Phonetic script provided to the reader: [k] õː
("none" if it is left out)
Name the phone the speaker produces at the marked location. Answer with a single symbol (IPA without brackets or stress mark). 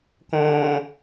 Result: k